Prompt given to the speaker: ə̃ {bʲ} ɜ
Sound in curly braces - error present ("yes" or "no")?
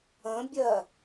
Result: no